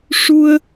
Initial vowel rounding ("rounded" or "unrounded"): rounded